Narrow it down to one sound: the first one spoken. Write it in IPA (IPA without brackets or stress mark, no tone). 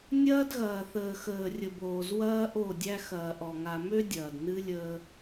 nʲ